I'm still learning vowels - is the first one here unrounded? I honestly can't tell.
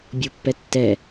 no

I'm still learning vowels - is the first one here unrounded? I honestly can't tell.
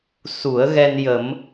no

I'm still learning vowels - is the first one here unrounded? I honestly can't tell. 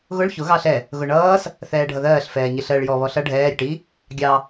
no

